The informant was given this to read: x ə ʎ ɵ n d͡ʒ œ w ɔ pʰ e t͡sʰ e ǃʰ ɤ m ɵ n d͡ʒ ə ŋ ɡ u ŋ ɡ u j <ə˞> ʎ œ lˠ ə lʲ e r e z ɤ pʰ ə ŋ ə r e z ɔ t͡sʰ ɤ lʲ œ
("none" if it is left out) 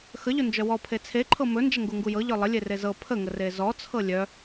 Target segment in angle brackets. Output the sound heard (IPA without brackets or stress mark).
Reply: ɤ